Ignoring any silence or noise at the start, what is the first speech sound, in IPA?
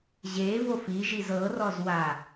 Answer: ʑ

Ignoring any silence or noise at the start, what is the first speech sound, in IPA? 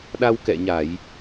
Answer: ɗ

